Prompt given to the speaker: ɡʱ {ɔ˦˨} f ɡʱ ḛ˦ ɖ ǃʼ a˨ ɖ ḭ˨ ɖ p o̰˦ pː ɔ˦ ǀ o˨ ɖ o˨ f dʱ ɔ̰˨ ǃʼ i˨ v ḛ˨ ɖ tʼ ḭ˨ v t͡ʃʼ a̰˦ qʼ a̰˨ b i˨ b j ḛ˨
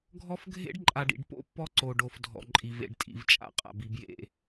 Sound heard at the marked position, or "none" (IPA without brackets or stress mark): ɔ˦